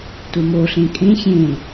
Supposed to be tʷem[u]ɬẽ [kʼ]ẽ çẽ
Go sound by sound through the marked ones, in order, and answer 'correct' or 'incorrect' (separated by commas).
incorrect, correct